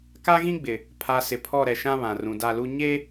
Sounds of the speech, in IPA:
ka˦ɣĩ˦ɡ͡bɪ˨ | pʰa˨ sɪ˨pʰɔ˦˨ɾɛ˨ʃã˦ βã˨rũ˨da˦˨lu˦ ɲe˦

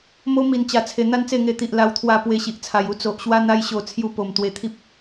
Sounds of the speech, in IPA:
mo˦ mi˨˩nt͡ɕa˨˩t͡sʰe˨˩ n̪a˥˧nt͡se˥˧ŋe˧t̪i˨ʔ la˧wt̪ʰwa˧ pwe˧ɕi˨ʔt͡sʰa˨˩ju˦ t͡so˨ʔɕwa˦n̪a˦jɕo˧ t͡sʰju˧ po˨˩m t̪we˧t̪ʰi˦p̚

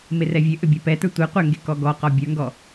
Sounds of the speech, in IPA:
merɛvʲøʔø bʲɛpɛtə˞ tʷɛ qʷɛŋɡe kɔɡɔqɔ bʲə˞ŋɡɔ

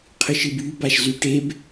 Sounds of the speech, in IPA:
qʰɨʃɨbybaʃ zyʈeb

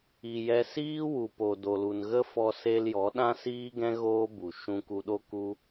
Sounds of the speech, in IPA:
i˨jɛ˧ siː˦wu˨ po˨do˨lu˨n ɣə˦fɔ˧ se˧l jɔ˨˦ɗã˦siː˦ɡɛ̃˦ ɣoː˦bu˨ ʃũ˧ku˧ɗo˦ ku˦

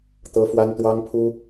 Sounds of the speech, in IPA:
t̪ɤ˥ fwa˥nt̪wɑ˥ŋpʰu˥

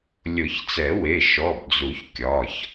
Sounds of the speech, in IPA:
lʲʊ˨˩˦çt͡sɛ˨˩˦we˩˧˩ ʃɔ˩˧˩bd͡zu˨˩˦ç kʲɒ˩˧˩ç

